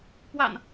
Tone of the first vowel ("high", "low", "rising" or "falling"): low